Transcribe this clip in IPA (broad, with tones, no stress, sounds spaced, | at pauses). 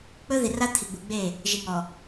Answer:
k͡p ɵ˦ ð i˨ r a˦ t̪ʰ i˨ ɡ͡b u˨ ɡ͡b e˦˨ | ʒ i˨ ŋ ɔ˨